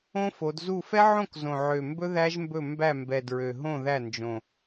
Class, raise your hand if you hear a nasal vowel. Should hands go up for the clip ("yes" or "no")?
yes